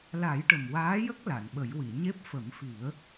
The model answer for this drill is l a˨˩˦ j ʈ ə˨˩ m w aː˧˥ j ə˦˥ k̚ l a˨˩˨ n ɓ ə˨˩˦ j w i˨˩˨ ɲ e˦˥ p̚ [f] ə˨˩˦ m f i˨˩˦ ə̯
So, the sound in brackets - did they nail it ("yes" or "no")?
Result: yes